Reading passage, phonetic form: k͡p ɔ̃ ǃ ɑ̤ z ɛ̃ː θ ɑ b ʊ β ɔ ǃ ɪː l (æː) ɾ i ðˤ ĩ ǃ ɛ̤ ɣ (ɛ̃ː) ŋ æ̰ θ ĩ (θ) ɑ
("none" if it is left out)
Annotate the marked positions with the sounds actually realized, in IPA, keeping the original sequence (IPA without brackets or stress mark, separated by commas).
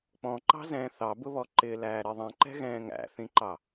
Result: æː, ɛ̃ː, ǃ